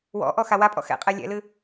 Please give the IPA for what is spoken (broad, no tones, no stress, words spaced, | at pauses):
wɔ̰ʔɔ xawapʼɔ̰ xɛ̰qʼɛ lʲɛ̰lɨ